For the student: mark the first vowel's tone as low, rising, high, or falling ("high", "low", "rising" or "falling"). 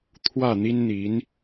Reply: falling